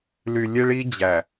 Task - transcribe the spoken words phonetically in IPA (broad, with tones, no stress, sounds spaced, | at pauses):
l y˨ lʲ e˦ ɭ i˦ d͡ʑ æ˨